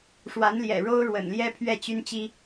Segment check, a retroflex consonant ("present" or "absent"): present